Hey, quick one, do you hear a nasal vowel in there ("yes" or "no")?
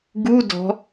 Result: no